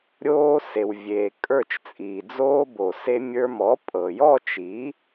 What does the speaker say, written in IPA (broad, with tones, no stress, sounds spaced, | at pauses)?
ɾʲ oː˧ s e˩ w vʲ eː˩ kʼ ə˞˧˩ t͡ʃ t͡sʼ iː˩ d͡z oː˧ b o˩ s e˧ mʲ ə˞˧ m ɔ˩˥ pʼ ɤ˩ j ɔ˥˨ t͡ʃ iː˩˥